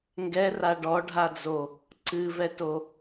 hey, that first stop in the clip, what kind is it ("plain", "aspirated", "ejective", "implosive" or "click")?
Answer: plain